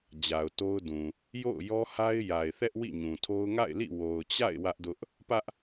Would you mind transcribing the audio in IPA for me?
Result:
d͡ʑa˨ʊ̯to˦ʊ̯dũ˨ | jo̰˦˨ʊ̯jɔ˦ha˦ɪ̯ ja˨ɪ̯θɛ˦ʔ wḭ˦˨ɲũ˨tʰo˦ʊ̯ ŋa̰˦˨ɪ̯lḭ˦˨ wo˨ʊ̯t͡ɕa̰˦˨ɪ̯ wä˦ʔdʊ˦ʔ | pä˦ʔ

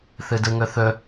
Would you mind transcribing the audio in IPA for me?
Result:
θɨdɯŋɵθɵ

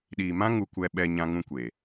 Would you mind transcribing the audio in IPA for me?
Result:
ɗiː˨mã˦ ŋu˧kʷɛ˧ ɓɛ˧ ɲã˧ŋũ˧kʷeː˨

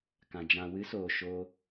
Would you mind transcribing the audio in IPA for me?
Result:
kã˨d͡ʒã˨ wɨ˨˦soː˨ ʃo˧

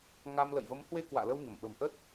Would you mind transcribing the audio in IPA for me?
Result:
ŋa˧m lə̰˧˨jvə˨˦mhwe˧ kwa̰ː˧˨lə˧wɲə˧˩m ɓə̤˨˩mʔə˦˥t̚

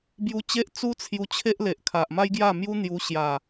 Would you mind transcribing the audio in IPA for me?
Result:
bju˧t͡ɕe˦ʔ t͡su˦t͡sʰju˧ t͡ɕʰe˦ʔle˨ʔ kʰa˨ʔ ma˦jɡja˥˧mju˦ n̪ju˧ɕja˨˩

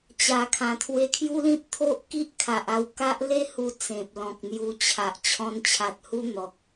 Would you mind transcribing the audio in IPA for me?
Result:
t͡ɕa˧kʰã˧ t̪ʰwe˧kʰju˦lĩ˦p̚t̪ʰo˦ʔ ki˦ʔ kʰa˨ʔa˧wka˦ʔ le˦ hu˧t͡sẽ˨p̚ lɔ̃˨k̚n̪ju˧t͡ɕʰa˨ʔ t͡ɕʰɔ̃˧nt͡ɕʰa˨t̚hu˦ n̪ɔ˨k̚

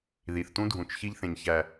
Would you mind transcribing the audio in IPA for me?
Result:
ði˨θtũ˦dʱũ˨t͡ʃ çi˦ʎθẽ˨ɲçæ˨

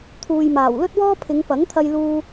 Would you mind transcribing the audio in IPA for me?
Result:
t̪ʰuː˨jmaː˨˩w lɵ˥t̚wɔː˥pʰɪ˨˧ŋ pɐ˨˥ŋt̪ʰɐ˧j luː˧

